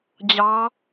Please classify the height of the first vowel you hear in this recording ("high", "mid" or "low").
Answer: low